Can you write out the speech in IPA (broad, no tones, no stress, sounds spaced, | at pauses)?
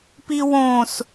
p i w õ s